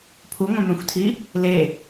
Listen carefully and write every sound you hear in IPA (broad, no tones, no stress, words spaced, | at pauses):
pʰuŋʷœ̃mœ̃xʷtʰi | le